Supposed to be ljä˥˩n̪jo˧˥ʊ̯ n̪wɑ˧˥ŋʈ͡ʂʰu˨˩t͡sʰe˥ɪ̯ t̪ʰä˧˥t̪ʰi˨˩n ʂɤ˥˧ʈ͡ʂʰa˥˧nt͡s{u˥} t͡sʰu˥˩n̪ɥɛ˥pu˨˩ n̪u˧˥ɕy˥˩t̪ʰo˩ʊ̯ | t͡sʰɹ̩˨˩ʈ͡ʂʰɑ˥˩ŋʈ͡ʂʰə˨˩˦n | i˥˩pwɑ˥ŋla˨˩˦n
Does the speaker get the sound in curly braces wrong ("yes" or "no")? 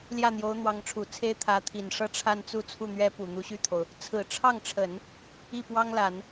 yes